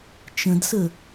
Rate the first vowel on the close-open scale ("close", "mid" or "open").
mid